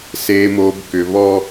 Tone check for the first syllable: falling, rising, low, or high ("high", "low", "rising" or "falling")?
low